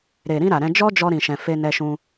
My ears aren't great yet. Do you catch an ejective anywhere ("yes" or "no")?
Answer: no